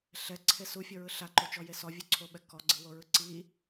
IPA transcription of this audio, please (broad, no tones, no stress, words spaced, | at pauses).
ɬɛǀʰe sufʲɔɹɯ ɬaǃot͡ʃɔje sɔvʲuǀʰoɓɛ kɔɡ͡ǀɯwoɹɯ ǀi